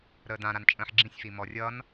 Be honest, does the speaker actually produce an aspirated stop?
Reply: no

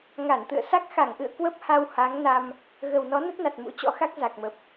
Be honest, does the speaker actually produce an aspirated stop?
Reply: no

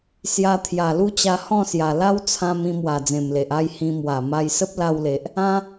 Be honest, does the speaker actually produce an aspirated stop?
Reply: yes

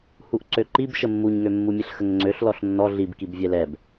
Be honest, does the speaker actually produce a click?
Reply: yes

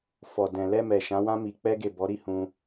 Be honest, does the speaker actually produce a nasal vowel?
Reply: yes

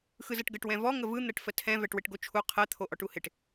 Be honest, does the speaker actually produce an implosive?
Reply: no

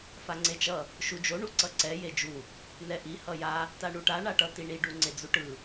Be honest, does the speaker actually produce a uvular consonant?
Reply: no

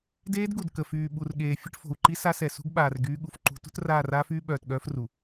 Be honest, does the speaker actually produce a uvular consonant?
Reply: no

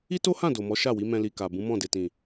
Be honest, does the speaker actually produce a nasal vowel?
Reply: yes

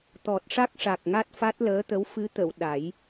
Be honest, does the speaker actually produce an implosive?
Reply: yes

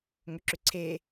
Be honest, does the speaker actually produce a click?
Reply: yes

